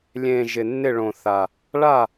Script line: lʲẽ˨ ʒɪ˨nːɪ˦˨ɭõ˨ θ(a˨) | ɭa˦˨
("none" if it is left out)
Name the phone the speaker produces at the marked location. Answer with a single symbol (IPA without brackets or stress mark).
a˨